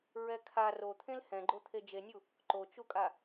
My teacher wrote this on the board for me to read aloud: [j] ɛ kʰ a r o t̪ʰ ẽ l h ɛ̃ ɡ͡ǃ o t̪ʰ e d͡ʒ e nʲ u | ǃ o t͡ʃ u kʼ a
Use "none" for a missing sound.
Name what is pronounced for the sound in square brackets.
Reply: ɹ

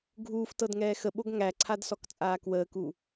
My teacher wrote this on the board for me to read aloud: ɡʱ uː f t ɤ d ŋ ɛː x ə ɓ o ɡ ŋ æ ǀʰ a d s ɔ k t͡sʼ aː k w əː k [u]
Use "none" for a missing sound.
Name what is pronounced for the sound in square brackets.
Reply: u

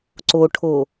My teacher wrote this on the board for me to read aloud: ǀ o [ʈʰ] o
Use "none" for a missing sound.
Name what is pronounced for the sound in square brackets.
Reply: ʈʰ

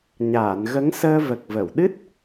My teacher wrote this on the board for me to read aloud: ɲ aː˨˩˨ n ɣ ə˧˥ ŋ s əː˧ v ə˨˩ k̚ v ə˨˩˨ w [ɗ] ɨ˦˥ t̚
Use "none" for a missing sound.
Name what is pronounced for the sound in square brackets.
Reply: ɗ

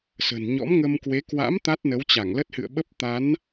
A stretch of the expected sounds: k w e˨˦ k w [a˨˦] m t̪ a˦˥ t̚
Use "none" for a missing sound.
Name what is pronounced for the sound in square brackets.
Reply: a̰˧˥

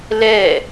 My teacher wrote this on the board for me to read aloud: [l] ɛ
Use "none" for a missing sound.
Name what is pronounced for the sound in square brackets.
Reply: l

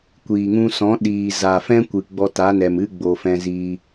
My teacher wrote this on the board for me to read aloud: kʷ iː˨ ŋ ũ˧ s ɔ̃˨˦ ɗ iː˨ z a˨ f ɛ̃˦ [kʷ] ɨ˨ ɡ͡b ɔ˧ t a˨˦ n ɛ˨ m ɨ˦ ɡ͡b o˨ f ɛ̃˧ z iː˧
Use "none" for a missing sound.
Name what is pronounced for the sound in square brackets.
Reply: kʷ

